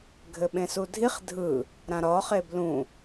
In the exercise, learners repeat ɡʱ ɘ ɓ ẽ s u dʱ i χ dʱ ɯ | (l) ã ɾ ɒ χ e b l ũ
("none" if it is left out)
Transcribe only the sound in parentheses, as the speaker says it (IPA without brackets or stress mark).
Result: ɾ